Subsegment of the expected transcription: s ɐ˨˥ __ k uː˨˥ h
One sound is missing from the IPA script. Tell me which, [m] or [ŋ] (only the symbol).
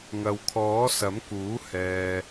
m